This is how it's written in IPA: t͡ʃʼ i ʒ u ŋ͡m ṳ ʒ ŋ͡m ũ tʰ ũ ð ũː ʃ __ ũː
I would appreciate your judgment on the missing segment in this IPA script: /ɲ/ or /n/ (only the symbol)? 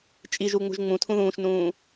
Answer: n